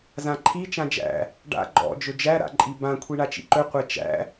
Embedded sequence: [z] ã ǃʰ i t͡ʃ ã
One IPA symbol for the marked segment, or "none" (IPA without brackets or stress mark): z